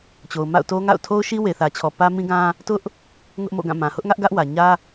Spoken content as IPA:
t͡ɕ o˨ ʊ̯ m a̰˦˨ ʊ̯ t o˦ ŋ a̰˦˨ ʊ̯ tʰ o˦ ʊ̯ ʃ i˦ w e˨ θ ä˨ t͡ɕʰ ɔ˨ p ä˦ m ĩ˦ ɡ ã˦ | t ʊ˦ ʔ | ŋ ʊ˦ ʔ m o̰˦˨ ɡ ã˦˨ m ã˨ h ʊ˦ ʔ ŋ ä˦ ʔ ɡ ä˦ ʔ w ä˨ ɲ ä˦

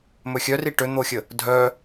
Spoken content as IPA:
m ɵ xʲ œ r i ʈ ø n̪ o xʲ ə | dʱ œ

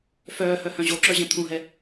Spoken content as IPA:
f œː h œ h œ̃ ʑ o ǁ œ ʑ ɛ̃ t̪ʰ ũ ɦ ɛ

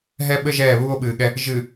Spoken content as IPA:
ɦ ɛ˦ ɓ ɘ˦ ʒ ɛː˦˨ β uː˦ o̯ ɓ ɨː˨ ɠ ɛ˦ | ʒ ɨ˨

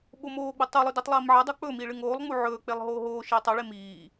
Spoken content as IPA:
ɓ o m oː ɡ͡b ɵ tˤ ʉ lˠ ʉ d e tˤ lˠ iː m ʕ ɐ dˤ o k͡p ɵ m i ɭ ɨ ŋ oː lˠ ŋ͡m u ʕ ɵː k͡p e lˠ ɦ oː ɦ oː ʃ iː tˤ ɐ ɭ e m iː

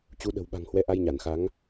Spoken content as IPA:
t͡ɕ u˨˦ ɗ ə̤˨˩ w ɓ a̤˨˩ ŋ h w ɛ˨˦ ʔ a˧ j ɲ a˧˩ n x a˨˦ ŋ

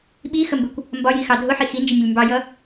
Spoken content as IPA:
ɓ i x ə m b ɪ kʷ | m b ɒ j i x ɑ dʱ ʊ ħ i x i n d͡ʒ ɪ nʲ ʊ lʲ m b ɑ j ʌ

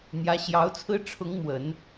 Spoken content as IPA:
n̪ j ä˧˥ ɕ j ɑ˧˥ ʊ̯ t͡sʰ ɹ̩˥ ʈ͡ʂʰ ʊ˧˥ ŋ m w ə˨˩˦ n

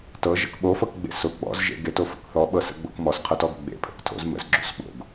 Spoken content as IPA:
t ɤ ʒ ə̰ k ɓ o f ɤ k ɡ͡b ḛ s ʊ ɡ͡b ɔ̰ z ʒ ḛ ɡ e t o f ə̰ k θ ɔ ɓ ɤ s ə̰ ɡ͡b o̰ k m ɔ s qʰ ɤ t ɔ ɡ ɡ͡b ḛ pʰ ə̰ k tʰ o̰ z m ə̰ z ɡ͡ǁ o̰ s ɓ o̰ ɡ

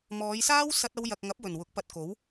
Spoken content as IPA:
m ɔː˨˧ j s aː˥ w s ɐ˥ t̚ ɐ˥ w j ɐ˧ k̚ ŋ ɐ˨˥ p̚ w ɵ˨˩ n w ʊ˨˥ k̚ p ɐ˧ t̚ k o˨˥ w

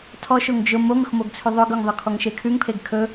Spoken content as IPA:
tʰ ɔ ʃ o ŋ d͡ʒ ʊ m o ŋ ʊ x m o ɡ t͡sʰ ʉ ðˤ ɵ ɡ ɵ ŋ ðˤ ʊ kʰ ɔ ŋ ʃ e kʰ ʉ ŋ pʰ e ɡ kʰ ɵ

